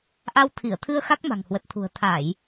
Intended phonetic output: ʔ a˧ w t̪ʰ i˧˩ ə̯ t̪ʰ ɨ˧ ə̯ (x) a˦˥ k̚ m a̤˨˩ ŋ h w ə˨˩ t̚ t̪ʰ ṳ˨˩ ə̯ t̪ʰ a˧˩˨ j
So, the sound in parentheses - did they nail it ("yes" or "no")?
yes